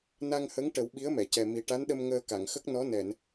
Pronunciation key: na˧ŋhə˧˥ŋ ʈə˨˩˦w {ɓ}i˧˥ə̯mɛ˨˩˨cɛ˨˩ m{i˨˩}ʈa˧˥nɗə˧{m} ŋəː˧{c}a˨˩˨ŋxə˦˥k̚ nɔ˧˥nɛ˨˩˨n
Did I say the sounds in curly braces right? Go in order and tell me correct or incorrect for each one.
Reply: correct, correct, correct, incorrect: k

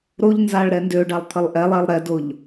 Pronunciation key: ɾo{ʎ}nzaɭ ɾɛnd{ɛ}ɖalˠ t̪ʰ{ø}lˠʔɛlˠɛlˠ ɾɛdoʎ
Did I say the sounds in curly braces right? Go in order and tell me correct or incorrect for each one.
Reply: correct, incorrect: ø, incorrect: ə

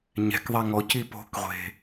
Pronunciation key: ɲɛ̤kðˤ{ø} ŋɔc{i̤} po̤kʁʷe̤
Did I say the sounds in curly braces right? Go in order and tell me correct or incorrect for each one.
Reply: incorrect: ɛ, incorrect: i

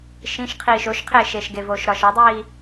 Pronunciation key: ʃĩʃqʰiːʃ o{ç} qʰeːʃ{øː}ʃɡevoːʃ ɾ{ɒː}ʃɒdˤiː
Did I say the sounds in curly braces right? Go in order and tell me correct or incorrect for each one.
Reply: incorrect: ʃ, incorrect: eː, incorrect: ɒ

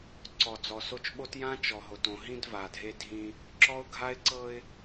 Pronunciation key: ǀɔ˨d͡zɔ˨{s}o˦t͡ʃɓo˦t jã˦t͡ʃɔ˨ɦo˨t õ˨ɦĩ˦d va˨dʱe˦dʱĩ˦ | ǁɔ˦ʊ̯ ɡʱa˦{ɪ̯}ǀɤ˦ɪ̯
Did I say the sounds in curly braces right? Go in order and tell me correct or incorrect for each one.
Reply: correct, correct

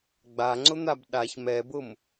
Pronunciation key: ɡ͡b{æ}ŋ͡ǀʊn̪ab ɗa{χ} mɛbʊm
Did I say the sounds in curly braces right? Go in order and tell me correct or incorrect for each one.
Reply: incorrect: a, incorrect: ç

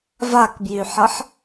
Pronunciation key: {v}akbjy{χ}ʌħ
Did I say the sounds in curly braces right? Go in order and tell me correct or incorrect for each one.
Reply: correct, incorrect: ħ

